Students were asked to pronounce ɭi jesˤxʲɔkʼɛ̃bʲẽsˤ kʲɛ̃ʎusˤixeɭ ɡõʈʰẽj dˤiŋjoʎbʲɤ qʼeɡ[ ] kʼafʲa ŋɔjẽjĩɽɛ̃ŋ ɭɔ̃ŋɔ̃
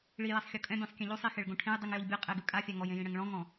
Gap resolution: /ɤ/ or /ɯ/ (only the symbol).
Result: ɯ